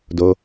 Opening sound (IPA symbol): d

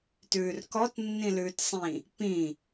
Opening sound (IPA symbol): t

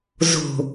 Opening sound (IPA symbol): z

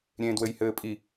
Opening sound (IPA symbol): ɾʲ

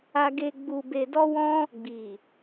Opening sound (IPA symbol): a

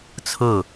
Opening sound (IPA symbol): t͡sʰ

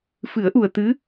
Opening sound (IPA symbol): f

